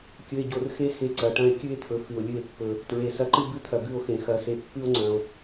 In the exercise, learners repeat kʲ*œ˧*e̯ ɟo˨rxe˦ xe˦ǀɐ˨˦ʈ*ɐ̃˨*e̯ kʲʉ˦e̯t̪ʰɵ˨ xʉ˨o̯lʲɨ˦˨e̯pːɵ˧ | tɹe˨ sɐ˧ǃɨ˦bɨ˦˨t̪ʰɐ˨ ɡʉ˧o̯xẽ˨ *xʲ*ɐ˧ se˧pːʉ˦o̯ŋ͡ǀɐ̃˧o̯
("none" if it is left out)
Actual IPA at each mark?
ɵ˧, ɐ̃˦, x

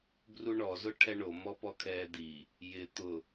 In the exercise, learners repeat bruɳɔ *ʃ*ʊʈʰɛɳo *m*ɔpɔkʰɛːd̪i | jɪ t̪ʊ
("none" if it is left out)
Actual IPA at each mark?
z, m

